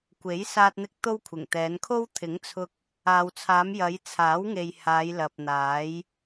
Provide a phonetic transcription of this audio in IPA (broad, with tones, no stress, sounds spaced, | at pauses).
kʷ e˨˥ j s aː˥ t̚ n̪ ɪ˥ k̚ t̪ o˥ w kʷʰ ɪ˨˩ ŋ t̪ ɛː˨˧ n kʰ o˥ w t̪ʰ ɪ˨˥ ŋ t͡sʰ ʊ˧ k̚ | aː˨ w t͡sʰ aː˨˧ m j ɐ˨˧ j t͡sʰ aː˨˥ w ŋ e˨ j h aː˨˧ j l ɐ˨ p̚ n̪ aː˨˥ j